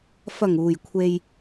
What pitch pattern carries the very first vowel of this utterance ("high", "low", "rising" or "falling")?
low